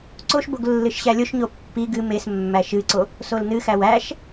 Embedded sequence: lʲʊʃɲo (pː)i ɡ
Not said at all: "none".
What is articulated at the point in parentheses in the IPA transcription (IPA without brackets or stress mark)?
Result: pː